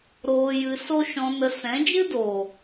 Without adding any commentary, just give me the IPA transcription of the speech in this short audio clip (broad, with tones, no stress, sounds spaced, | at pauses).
ɾ oː˧ j ɨ˧ s o˦ ʃ ɔ̃˧ n ə˧ s ɛ̃˨˦ d͡ʒ ɨ˦ d oː˨